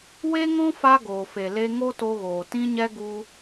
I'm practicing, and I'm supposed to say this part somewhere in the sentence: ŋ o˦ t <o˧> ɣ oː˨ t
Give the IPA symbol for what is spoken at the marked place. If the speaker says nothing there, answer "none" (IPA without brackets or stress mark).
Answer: o˧